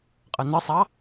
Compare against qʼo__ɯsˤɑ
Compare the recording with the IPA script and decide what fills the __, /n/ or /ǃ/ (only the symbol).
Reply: n